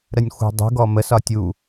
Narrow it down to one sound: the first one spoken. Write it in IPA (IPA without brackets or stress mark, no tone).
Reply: ɾ